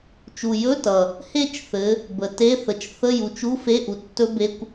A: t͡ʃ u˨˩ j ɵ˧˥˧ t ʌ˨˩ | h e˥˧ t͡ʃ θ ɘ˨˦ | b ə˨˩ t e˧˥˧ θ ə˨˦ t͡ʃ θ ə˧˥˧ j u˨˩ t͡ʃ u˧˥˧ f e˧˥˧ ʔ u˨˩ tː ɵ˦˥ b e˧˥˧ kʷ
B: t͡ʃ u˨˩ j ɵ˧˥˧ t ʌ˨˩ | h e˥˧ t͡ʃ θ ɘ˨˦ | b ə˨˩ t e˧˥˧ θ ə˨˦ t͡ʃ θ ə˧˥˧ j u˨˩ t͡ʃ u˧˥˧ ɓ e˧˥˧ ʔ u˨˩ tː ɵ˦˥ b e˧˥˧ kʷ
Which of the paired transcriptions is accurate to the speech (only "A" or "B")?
A